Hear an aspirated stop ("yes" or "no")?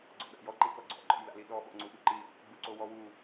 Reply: no